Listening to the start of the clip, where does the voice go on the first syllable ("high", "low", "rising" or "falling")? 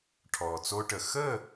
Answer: low